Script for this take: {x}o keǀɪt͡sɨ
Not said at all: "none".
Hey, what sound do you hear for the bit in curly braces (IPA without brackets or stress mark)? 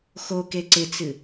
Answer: x